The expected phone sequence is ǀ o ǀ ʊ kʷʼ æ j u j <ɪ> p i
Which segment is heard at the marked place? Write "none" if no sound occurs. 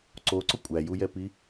ɛ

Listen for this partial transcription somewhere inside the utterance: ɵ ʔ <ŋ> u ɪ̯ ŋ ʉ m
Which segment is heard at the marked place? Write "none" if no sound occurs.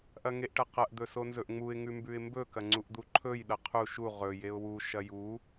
ŋ͡m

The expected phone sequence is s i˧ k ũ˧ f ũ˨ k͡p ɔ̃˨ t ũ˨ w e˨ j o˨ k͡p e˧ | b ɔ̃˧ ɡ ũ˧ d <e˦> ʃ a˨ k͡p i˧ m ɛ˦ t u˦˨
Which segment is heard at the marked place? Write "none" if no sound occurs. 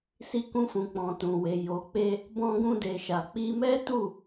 e˨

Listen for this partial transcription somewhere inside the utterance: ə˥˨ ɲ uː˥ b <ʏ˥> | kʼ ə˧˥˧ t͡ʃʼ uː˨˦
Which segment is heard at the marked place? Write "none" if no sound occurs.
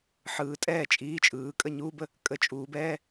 ə˥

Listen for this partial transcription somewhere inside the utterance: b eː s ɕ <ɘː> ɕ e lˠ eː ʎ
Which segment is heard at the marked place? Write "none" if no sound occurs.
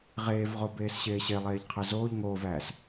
eː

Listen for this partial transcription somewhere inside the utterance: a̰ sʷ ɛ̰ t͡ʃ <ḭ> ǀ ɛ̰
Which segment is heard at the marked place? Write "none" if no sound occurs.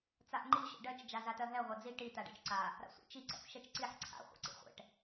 i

